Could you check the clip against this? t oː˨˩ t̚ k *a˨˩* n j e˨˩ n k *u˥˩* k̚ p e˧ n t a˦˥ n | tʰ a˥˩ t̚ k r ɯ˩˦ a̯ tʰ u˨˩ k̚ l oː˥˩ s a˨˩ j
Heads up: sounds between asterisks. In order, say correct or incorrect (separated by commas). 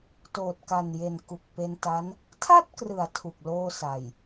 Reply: correct, incorrect